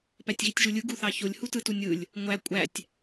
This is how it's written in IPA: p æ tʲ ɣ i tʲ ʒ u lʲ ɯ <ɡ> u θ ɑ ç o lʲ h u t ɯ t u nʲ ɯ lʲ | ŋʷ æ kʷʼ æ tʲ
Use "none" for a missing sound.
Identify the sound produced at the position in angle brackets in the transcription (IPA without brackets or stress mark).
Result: ɡ